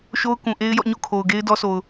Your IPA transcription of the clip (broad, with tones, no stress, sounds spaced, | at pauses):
ʃ o˦ ʊ̯ k ũ˨ ʔ e˦ ɪ̯ j ɔ̰˦˨ ɲ o̰˦˨ kʰ o˨ ʊ̯ ɡ e˦ ɪ̯ d ɔ˦ sʰ o˨ ʊ̯